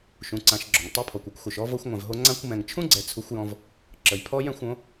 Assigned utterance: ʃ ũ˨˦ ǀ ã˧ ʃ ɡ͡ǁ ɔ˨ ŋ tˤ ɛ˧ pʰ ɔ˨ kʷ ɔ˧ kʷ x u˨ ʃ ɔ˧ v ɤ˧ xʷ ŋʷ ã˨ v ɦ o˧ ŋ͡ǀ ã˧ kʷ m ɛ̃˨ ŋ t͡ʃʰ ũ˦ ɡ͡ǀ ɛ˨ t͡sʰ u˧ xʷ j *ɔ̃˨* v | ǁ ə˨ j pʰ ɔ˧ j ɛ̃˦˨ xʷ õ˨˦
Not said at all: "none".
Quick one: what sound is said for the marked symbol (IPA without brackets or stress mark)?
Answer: ɔ̃˧